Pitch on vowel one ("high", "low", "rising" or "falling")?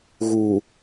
low